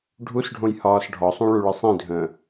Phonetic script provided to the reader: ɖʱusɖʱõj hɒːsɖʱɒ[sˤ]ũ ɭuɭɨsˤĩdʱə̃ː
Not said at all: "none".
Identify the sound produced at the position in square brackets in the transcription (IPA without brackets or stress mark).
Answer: sˤ